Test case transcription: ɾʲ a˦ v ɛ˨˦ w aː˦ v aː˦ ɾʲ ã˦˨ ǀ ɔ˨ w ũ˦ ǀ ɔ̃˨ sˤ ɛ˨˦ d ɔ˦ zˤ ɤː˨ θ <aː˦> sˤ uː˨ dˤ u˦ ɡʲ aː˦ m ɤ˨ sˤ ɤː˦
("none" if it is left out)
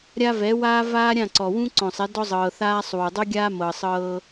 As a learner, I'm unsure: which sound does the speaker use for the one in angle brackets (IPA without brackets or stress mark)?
aː˦